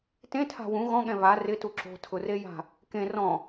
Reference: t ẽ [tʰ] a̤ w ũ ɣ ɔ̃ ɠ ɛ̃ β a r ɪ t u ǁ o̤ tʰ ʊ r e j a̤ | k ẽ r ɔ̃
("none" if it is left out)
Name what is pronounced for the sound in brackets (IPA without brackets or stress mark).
tʰ